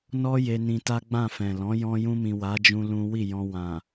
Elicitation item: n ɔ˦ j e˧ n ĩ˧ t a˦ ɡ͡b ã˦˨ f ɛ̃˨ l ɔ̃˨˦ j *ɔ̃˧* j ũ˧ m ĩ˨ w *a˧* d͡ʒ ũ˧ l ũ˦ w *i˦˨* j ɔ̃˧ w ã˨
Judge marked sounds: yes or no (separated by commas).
yes, no, yes